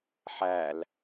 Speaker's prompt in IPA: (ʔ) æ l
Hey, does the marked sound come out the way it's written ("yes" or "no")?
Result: no